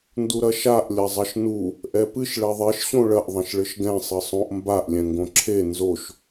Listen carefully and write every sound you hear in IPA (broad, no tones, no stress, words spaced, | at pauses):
nduɾɐʃaʔ lʲɐzˤɐʃnu | ʔɛpɨʃ ɭɛðˤeʃ ɕõɭɐʔ ðˤɐ̃ʃɭɘʃɡɛ̃ sˤɨsˤõʔ mbaʔ lʲɛ̃ŋɡõǁʰe nzoʃ